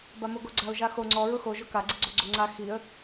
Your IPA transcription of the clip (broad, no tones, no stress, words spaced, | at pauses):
bamoɡoɡ͡ǀaʊ̯ ʒaxo ŋ͡ǀɔ ɹʊxo ʒʊka ɡ͡ǀiɡ͡ǀoɡ͡ǀoŋ͡ǀa xiə̯